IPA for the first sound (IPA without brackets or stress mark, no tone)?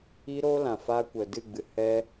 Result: i